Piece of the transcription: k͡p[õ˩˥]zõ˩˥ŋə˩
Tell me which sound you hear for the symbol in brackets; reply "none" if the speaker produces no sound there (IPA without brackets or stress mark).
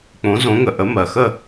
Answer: õ˩˥